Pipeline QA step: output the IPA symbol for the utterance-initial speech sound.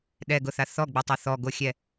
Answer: ɗ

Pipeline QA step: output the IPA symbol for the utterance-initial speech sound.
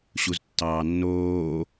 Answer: ɕ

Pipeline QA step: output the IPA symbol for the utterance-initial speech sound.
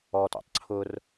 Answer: ɔ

